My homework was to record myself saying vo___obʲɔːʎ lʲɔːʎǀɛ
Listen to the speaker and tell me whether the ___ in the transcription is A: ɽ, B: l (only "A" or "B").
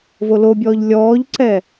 B